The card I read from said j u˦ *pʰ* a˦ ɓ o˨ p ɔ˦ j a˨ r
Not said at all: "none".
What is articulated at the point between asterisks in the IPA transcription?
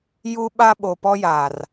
ɓ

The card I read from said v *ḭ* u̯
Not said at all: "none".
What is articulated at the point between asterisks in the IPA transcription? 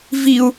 i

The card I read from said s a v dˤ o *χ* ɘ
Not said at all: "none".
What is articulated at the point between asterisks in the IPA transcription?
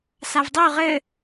ʁ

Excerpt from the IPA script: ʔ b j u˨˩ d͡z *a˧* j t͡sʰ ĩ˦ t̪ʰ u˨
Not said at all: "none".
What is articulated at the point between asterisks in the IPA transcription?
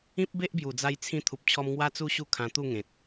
a˧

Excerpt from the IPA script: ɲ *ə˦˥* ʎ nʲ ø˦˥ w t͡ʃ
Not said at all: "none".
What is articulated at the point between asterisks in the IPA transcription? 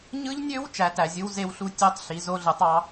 ɯ˦˥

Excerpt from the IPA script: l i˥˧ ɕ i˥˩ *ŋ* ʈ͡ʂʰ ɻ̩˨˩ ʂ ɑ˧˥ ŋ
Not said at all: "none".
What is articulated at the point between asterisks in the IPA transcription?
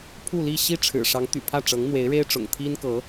none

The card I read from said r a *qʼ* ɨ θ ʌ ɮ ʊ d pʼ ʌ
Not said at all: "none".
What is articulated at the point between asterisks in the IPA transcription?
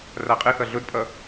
qʼ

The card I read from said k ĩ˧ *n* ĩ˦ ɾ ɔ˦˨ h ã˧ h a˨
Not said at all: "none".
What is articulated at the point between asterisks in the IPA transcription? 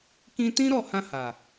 t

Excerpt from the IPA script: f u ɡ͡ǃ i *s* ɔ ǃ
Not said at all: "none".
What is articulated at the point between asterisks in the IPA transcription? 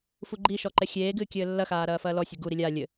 ʃ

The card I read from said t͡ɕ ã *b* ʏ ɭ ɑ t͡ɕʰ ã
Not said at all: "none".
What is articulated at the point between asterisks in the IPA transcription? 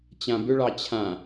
b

